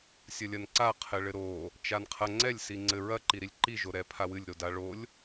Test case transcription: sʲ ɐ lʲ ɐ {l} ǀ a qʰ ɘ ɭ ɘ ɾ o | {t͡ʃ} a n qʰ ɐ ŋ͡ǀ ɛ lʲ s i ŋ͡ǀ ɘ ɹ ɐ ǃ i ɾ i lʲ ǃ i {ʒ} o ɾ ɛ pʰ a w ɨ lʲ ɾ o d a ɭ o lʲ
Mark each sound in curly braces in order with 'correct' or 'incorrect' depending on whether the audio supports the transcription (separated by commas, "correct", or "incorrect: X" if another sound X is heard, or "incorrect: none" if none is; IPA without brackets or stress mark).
incorrect: n, correct, correct